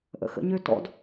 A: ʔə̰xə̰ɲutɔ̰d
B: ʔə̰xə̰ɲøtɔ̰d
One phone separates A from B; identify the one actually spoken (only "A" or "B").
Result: B